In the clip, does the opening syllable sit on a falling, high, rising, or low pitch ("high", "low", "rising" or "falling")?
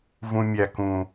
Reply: low